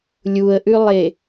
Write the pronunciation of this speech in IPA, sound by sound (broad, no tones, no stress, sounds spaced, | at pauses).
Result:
lʲ u ə̯ ʔ ʉ lˠ e